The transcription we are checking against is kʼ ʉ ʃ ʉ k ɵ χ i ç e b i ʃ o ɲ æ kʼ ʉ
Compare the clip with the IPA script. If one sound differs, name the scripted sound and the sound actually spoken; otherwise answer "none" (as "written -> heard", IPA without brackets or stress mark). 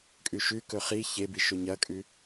æ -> ɐ